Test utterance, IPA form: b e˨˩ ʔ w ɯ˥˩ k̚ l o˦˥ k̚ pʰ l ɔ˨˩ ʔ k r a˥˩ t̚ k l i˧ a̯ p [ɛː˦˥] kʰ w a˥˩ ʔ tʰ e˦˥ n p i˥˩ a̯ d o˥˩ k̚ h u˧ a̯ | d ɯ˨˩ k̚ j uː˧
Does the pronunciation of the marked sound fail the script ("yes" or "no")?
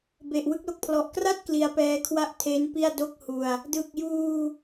no